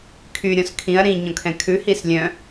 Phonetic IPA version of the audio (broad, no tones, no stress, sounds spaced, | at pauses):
kʰ y ɾʲ ɔ̃ s kʰ ĩ ɐ̯ ɾ ĩ ɲ ɔ̃ kʰ ɛ̃ kʰ ʉ h i s lʲ œ̃